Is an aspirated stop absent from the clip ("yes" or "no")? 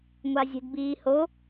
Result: yes